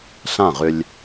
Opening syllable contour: falling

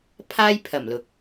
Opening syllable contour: high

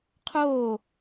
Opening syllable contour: falling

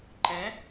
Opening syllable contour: rising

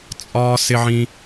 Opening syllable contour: high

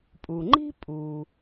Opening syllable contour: low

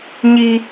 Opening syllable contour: high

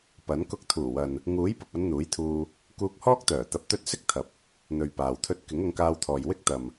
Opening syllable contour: rising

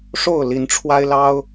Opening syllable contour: falling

